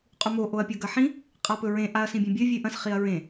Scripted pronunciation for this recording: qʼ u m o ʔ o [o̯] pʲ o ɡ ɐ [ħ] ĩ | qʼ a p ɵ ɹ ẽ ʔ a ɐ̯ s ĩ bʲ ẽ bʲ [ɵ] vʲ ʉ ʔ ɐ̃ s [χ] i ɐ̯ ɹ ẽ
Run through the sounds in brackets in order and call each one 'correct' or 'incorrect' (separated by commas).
incorrect, correct, correct, correct